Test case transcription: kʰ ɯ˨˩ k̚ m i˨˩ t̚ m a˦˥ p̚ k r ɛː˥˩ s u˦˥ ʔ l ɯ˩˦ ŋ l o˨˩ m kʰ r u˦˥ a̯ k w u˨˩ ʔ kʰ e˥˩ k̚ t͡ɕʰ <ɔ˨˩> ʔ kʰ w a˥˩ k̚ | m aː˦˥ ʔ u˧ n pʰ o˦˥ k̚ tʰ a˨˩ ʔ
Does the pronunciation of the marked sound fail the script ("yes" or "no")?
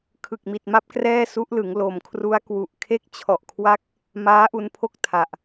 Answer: no